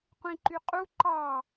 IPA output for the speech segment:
qʷ ĩ ǃ y qʼ u ǃ ɑ

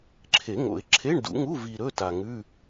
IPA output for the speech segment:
ǁʰ e˨˩˦ ŋ o̰˨˩˦ ɪ̯ ǁʰ e˧˥˧ ɳ d ṵ˨˩˦ ŋ u˧˥˧ v i˨ ɾ ɵ˧˥˧ t a˨ ŋ ʉ˧˥˧

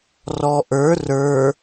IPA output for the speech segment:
r ɔ ʔ ə˞ r ə˞

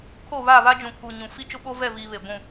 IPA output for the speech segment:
kʰ o˦˨ β a˦˨ β a˦ d͡ʒ ũ˨ kʰ u˨ ɲ ũ˨ f i˦ t͡ʃ ʊ˦ ɓ o˦ v ɛ˦˨ v iː˨ β e˨ ɡʷ ũ˦˨

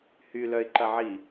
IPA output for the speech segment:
h y l œ ɪ̯ ǃ ɐ ʕ i

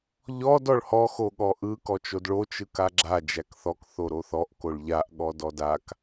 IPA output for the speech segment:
ʎ ɔ d ɔ ɭ h ɔ x o ɠ ɔ ʔ ɯ k ɔ t͡ʃ o d ɭ o t͡ʃ ɯ k a ɡ͡ǁ a d͡ʒ æ k θ ɔ k θ o ɾ o θ ɔ ʔ k o ɭ ʎ a ʔ ɠ ɔ d ɔ d a k

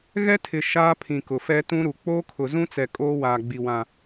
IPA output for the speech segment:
ɣ ɛ˦ tʰ ɪ˨ ʃ aː˦ pʰ ĩ˨ k ʊ˨ f ɛ˦ t ũ˦ ɾ u˨ k͡p oː˦ kʰ ʊ˨ z ũ˦ t͡s ɛ˨ kʼ oː˦ w aː˨ ɡ͡b i˨ w ã˨

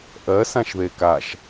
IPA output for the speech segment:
ʔ ɜ s ã ʃ ð e k a ʃ

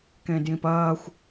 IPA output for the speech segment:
k ẽ d j ĩ p ɐː xʷ

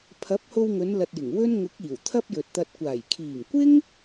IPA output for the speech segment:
pʰ ɐ˨˥ p̚ h o˧ w ŋ ɵ˨˧ n l ɐ˨ t̚ j ɪ˨˩ ŋ w ɵ˥ n ŋ ʊ˨˥ k̚ iː˨˩ w t̪ʰ ɐ˥ p̚ j ɵ˨ t̚ t̪ ɐ˧ t̚ kʷ aː˨˩ j kʰ iː˨˩ ŋ kʷ ɪ˥ ŋ

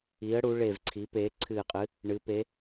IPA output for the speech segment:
i˩˧ ə̯ ɽ u˩˧ ɭ e˨˩ v ǀʰ i˩˧ p eː˩˧ ǀʰ ɨː˨˩ qʼ ɨ˩˧ | ɳ ɨ˩˧ p e˩˧

